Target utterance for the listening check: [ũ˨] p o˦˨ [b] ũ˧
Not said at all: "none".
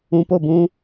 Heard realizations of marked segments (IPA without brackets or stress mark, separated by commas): ũ˨, b